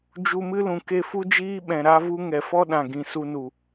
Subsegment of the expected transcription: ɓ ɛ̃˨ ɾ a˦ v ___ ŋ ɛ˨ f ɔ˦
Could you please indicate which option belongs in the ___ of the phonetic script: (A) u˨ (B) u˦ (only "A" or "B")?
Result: B